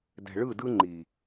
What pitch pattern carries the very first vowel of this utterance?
low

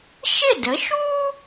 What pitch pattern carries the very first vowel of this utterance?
falling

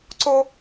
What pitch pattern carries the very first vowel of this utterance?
high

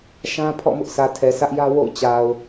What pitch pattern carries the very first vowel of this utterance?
high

